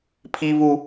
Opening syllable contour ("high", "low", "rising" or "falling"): high